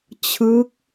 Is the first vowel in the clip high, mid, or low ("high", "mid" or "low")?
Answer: high